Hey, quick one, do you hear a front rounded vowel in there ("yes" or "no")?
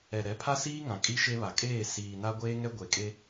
no